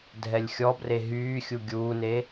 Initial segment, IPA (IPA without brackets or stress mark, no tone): dʱ